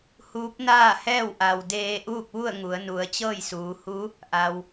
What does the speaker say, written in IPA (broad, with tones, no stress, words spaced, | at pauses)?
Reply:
huː˧˥p̚naː˥˨hɛː˥˨w ʔa˩w deː˧ ʔuː˥˨k̚ʋu˥˨ə̯ŋu˩˧ə̯ nu˩˧ə̯t͡ɕɤː˥˨jsuː˩˧hu˧˥ | ʔa˩w